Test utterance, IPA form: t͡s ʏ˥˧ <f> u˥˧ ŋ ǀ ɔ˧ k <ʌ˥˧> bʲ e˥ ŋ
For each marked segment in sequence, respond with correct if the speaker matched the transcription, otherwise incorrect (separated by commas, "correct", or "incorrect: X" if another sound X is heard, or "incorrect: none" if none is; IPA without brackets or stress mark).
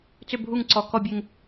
incorrect: bʱ, incorrect: ɔ˥˧